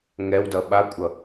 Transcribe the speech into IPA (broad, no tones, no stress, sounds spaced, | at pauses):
ŋ ɛ w d ʌ ɓ a kʷʼ ʌ